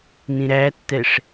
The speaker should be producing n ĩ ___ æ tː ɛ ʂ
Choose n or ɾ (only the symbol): ɾ